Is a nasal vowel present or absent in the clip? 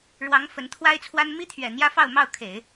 absent